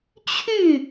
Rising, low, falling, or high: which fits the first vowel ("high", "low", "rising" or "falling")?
falling